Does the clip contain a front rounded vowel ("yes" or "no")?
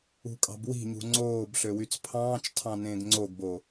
yes